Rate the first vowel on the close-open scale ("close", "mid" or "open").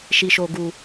close